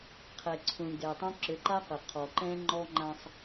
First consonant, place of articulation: uvular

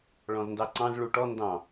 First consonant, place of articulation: retroflex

